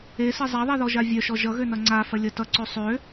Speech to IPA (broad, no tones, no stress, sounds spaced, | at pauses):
e s e zˤ a ðˤ e ð ɔ ʒ a vʲ œ ʃ ɔ ʒ ʌ ɣ ø n ʌ ŋ͡ǀ a f ɐ lʲ ʌ t ʌ ǀ ø sˤ ø